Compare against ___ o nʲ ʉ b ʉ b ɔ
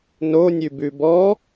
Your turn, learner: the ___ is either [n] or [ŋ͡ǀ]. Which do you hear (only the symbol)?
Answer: n